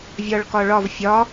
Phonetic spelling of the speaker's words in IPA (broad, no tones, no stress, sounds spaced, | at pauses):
vʲ ɒ ɭ k ɒ ɭ ɒ v fʲ ɒ